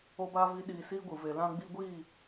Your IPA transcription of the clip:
o˦ b aː˦ v i˦ ɗ iː˧ s iː˦ ɡʷ ɨ˨ v e˨ l ã˧ ɡ͡b i˧ ɡʷ iː˦˨

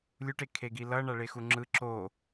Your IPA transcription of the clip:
lʲ u ʈ e kʰ e ɡ i l ʌ ɳ a ɭ e x u ŋ͡ǁ ɯ ǁ o

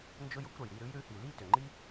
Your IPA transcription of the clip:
n d͡ʒ ʊ˦ j ʊ˦ kʷ ɾ ə˩ j ɾ i˥˨ ɾ ʉ˨˦ j ɾ ʉ˨˦ h i˩ l i˥˨ t ʏ˩ ŋ͡ǃ i˦

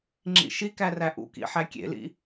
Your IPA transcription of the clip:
ŋ͡ǁ ḭ ʃ i k æ r æ ʔ ṵ k ḭ ħ æ kʲ ḛ l ḭ

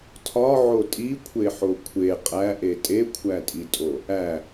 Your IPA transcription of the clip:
tʰ ɒ ʕ o tʼ i kʷʰ e ħ o kʷʰ e qʼ æ ʔ e tʼ e kʷʰ æ tʼ i tʼ o | æ

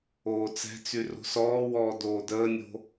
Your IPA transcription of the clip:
oː t͡s ɛ̤ t͡s y r o̤ s ɔː w ɔː d oː d əː nʲ o̤

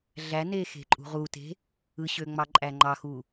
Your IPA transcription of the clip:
ɮ æ n e x e̤ ǃʼ ṳ ʁ u t e̤ | ɯ ɕ ø ŋ͡m ɑ ǃʼ æ ŋ͡ǃ ɑ x u

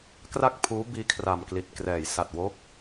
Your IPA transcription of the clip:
k r a˥˩ k̚ pʰ uː˦˥ b iː˦˥ kʰ r a˨˩ m k l i˨˩ t̚ k r ɛː˩˦ j s a˨˩ t̚ w o˦˥ k̚

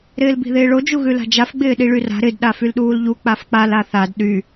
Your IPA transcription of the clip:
ɾ ɪː l b i̤ ð ɪː ɭ o d͡ʒ u ɣ ʉ l a̤ d͡ʒ a f ɡ͡b ɪː ɗ i ɭ y r a̤ ɾ ɪ d ɗ a f y l ɗ uː l ʎ u k͡p a f k͡p a l a θ a d ɗ y

